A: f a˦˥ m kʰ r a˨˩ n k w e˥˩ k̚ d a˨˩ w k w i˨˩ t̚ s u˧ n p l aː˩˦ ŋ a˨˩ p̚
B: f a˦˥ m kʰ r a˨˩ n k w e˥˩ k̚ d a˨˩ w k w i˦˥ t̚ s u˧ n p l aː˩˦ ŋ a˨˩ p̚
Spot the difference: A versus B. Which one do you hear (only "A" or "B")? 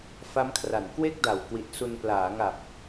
A